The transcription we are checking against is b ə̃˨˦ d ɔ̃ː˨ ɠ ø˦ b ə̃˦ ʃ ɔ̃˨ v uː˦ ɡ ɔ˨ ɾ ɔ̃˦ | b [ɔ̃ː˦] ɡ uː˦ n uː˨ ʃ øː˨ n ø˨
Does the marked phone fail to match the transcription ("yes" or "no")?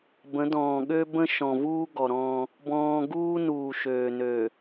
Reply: no